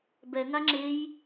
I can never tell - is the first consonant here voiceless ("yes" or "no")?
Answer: no